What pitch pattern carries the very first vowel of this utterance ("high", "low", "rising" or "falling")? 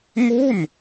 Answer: falling